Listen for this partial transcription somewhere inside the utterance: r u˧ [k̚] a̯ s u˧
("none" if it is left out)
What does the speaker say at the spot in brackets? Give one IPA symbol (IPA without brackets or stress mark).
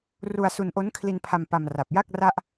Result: none